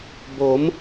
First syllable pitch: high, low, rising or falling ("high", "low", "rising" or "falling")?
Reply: rising